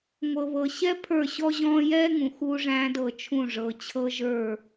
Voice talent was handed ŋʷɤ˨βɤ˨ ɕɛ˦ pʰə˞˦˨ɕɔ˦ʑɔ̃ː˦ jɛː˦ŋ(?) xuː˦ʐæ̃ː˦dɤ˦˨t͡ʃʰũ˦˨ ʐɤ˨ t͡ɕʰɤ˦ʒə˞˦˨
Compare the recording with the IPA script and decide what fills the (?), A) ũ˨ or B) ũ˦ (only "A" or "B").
A